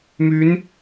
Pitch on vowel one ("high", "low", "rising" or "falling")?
rising